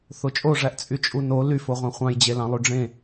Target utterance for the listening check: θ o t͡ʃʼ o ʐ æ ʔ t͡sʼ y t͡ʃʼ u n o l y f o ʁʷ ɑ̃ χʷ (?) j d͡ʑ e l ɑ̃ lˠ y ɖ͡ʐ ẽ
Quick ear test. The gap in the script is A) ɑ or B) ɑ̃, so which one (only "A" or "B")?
B